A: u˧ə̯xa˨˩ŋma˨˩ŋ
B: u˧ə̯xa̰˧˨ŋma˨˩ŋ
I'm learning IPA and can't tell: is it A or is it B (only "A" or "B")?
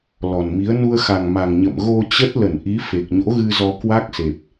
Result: A